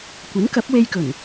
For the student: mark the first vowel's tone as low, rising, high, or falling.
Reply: rising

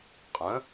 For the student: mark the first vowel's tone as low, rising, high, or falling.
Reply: rising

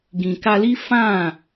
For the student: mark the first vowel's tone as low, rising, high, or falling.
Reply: low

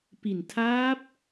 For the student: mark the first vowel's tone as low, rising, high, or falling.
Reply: low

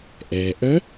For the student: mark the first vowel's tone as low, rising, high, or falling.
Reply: low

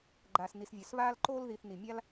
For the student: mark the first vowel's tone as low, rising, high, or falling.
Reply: low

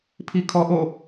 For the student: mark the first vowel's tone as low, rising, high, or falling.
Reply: high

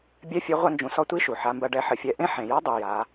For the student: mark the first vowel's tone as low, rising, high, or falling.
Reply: high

